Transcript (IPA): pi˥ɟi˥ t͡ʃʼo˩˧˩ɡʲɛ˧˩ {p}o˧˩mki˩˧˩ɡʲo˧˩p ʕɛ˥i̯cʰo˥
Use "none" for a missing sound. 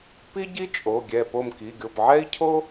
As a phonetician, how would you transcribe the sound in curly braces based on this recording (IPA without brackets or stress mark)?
p